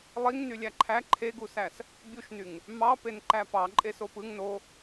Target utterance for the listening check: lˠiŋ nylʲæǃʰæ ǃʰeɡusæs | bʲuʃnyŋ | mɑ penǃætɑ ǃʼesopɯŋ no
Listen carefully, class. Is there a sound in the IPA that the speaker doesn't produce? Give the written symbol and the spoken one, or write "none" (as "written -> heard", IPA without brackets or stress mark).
t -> p